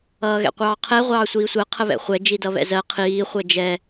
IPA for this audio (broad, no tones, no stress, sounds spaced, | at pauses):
ʌː ɣ ɛ̰ qʷ ɑː qʰ ɛ ʁʷ ɑː sʷ iː sʷ ɜ qʰ ə β ɛ̰ χʷ ɛ d͡ʒ i d ʌ β ɛ̰ z ɜ qʰ iː χʷ ɜ d͡ʒ ɛ